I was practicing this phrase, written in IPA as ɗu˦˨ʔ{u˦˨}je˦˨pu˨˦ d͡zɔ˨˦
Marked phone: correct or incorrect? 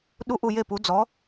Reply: correct